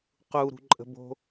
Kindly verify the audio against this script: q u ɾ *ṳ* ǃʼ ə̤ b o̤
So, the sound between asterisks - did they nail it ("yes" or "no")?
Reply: yes